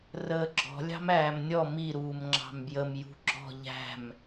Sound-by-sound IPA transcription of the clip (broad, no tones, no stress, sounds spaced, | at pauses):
r əː ɡ͡ǁ ɔ̤ lʲ ɑ̤ m æː m nʲ ɔ m i ɾ uː m ŋ͡ǁ ɑ̤ m b j ə m j ṳ ɡ͡ǁ ɔ̤ ʎ æ̤ m